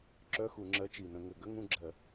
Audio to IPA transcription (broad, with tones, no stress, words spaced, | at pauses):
ǁœ˧˥˧xu˧˩˧ŋ͡ǁɜ˨˥ t͡ʃi˨˩nə̃˧˩˧ŋɘ˨˩ ɡə˧˥˧ ŋũ˥˧ɡ͡ǁɜ˧˩˧